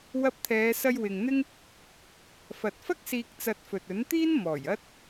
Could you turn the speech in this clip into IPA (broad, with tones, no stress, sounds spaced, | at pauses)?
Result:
w ɐ˧ p̚ t̪ʰ ɛː˨˧ s ɐ˧ j w ɪ˨ ŋ n̪ ɪ˥ ŋ | f ɐ˨ t̚ f ɐ˥ k̚ s iː˧ k̚ t͡s ɐ˧ t̚ f ɵ˨ t̚ ɵ˨˥ n t̪ iː˥ n m ɔː˨˩ j ɐ˧ t̚